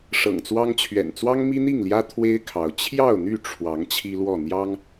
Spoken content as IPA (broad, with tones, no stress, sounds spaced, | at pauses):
ʂ ɤ̰˨˩ ŋ t͡s w ɑ˦ ŋ t͡ɕʰ ɥ ɛ̰˨˩ n t͡s w ɑ˦ ŋ m i˦ n̪ i˥˨ ŋ l j ä˦ t̪ʰ w e˦ ɪ̯ kʰ ɑ˨˦ ʊ̯ t͡ɕʰ j ɑ˥˨ ʊ̯ n̪ y˥˨ ʈ͡ʂʰ w ɑ˨˦ ŋ t͡ɕʰ i˦ l w ɔ˥˨ n̪ j ɑ˦ ŋ